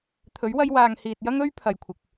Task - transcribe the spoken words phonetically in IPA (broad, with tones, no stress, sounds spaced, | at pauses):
t̪ʰ ɵ˨˥ ɥ w ɐ˧ j w aː˨ ŋ h iː˨ t̚ j ɐ˥ ŋ ɵ˥ ɥ pʰ ɐ˨ j kʷʰ ɪ˨ k̚